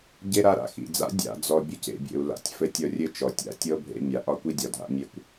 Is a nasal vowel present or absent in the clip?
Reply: absent